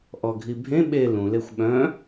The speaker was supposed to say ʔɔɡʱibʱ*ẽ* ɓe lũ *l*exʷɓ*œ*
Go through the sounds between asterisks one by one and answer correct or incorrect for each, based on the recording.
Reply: correct, correct, incorrect: œ̃

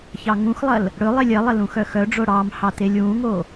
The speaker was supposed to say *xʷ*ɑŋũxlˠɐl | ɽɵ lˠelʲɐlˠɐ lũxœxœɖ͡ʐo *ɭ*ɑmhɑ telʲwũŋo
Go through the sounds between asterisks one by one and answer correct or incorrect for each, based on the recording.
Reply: incorrect: ç, incorrect: ɽ

